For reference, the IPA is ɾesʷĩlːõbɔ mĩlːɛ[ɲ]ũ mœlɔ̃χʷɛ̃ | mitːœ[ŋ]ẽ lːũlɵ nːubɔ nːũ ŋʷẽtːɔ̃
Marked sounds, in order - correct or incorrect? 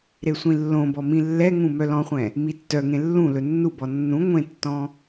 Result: incorrect, correct

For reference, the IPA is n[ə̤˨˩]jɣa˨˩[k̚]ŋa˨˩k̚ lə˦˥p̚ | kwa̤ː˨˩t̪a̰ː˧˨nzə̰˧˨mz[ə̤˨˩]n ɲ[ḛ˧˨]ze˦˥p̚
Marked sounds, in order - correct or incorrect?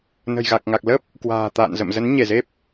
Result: correct, correct, incorrect, incorrect

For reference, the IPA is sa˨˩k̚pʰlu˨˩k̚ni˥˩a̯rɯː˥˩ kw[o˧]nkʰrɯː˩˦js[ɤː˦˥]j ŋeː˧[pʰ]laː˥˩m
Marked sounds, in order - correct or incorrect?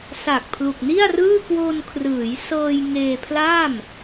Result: correct, incorrect, correct

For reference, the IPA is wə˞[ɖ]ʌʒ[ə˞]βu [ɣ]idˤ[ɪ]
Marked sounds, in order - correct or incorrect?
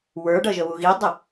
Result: correct, incorrect, correct, correct

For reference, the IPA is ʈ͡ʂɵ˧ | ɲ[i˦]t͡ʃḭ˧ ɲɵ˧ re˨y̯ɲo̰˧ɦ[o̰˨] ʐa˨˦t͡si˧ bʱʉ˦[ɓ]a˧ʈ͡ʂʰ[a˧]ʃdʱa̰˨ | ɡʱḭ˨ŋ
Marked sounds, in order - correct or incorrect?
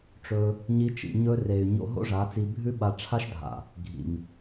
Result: correct, incorrect, correct, incorrect

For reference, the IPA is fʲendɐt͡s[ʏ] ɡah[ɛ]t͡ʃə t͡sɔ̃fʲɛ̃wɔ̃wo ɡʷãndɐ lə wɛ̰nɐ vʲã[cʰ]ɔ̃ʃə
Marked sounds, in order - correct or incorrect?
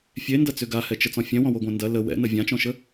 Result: correct, correct, incorrect

